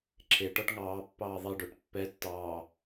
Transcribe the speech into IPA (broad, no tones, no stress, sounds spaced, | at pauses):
ǁʰ e ʈ ɔ ʈ ŋ ɑː pː ɑː ðˤ e ɖ o ʈ pː ɛ tː ɑː